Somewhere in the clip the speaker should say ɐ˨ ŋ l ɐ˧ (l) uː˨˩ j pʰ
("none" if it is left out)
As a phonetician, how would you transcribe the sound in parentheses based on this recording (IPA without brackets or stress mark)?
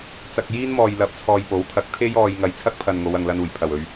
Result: n